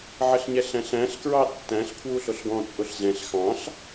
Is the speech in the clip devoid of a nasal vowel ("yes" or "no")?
no